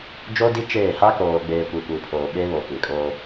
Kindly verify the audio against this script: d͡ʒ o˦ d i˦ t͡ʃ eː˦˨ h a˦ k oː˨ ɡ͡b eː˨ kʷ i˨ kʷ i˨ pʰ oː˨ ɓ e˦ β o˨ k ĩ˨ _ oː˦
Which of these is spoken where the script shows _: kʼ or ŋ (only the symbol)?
kʼ